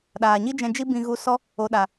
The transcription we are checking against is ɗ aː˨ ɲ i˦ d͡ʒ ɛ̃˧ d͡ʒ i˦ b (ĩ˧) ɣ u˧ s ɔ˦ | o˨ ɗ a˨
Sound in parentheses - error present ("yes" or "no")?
no